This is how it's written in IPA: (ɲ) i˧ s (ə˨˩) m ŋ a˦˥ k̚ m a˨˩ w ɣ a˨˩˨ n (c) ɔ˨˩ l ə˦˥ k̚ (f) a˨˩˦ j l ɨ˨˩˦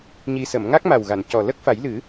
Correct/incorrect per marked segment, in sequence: correct, incorrect: ə˨˩˨, correct, correct

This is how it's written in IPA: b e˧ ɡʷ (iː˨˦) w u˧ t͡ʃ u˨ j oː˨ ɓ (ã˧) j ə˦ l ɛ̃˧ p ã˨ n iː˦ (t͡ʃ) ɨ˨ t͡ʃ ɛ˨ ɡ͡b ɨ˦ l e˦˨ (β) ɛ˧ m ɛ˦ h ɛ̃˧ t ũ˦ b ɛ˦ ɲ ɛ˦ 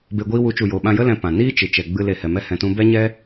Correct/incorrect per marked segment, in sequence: incorrect: iː˦, correct, correct, incorrect: h

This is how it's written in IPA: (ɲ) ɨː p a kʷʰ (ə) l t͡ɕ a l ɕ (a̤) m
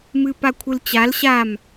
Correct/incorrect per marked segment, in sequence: incorrect: m, incorrect: ɨ, incorrect: a

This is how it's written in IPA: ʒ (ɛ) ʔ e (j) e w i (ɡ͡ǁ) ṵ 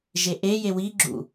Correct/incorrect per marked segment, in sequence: incorrect: e, correct, correct

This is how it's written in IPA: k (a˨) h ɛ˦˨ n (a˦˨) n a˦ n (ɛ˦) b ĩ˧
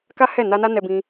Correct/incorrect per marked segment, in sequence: incorrect: a˦, incorrect: a˧, incorrect: ɛ˧

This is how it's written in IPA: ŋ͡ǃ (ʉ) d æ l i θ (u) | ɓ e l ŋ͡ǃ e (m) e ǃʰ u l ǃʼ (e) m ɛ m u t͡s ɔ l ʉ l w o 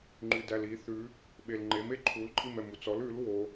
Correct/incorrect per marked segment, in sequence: correct, incorrect: ʉ, correct, incorrect: i

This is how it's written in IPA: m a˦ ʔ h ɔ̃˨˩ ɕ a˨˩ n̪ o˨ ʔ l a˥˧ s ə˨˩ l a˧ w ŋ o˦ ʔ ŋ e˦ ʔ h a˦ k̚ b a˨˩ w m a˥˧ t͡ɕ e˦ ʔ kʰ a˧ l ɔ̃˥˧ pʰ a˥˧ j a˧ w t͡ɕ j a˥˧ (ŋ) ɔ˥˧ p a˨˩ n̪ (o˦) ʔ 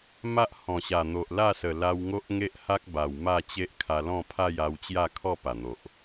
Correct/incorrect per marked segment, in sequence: incorrect: kʰ, incorrect: o˨

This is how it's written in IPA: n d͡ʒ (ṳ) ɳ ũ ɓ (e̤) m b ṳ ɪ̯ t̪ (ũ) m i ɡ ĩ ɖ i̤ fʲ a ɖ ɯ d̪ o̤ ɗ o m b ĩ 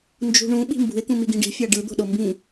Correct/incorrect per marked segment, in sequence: correct, incorrect: i̤, correct

